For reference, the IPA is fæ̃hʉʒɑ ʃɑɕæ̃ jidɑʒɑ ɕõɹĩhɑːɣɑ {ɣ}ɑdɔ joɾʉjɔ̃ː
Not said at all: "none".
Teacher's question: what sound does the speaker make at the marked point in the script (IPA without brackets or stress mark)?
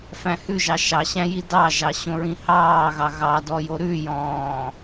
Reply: ɣ